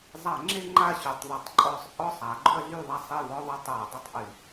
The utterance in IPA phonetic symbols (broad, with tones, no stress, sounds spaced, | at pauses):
zˤ a˧˩˧ ŋ͡ǁ e˦ ŋ͡ǃ a˦˨ ɕ y˧˩˧ tˤ ðˤ ʌ˧˩˧ tˤ ǃʼ ɔ˦˨ sˤ ʔ ɔ˦˨ sˤ a˩˥ ɡ͡ǃ ʊ˦ ɐ̯ ɮ y˦˨ ðˤ a˦˨ sˤ e˦˨ v ɔ˦ ðˤ ɐ˦ tˤ ɛ˧˩˧ ɐ̯ dˤ ʊ˦˨ tˤ ʔ y˧˩˧